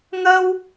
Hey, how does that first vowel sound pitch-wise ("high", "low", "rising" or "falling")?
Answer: high